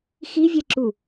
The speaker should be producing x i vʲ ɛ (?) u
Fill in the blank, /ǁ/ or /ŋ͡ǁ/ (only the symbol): ǁ